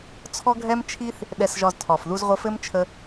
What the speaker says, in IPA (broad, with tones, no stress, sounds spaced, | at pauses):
t͡sʰ ɔ˦ ɡʱ ɛ˦ m t͡ʃʰ i˦ θ | ɗ ɛ˧ s ʒ ɒ˧ z tʰ ɒ˨ f ð u˧ z ʁʷ ə˧ f ɘ˦ m t͡ʃʰ ə˧